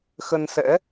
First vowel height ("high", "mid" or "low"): mid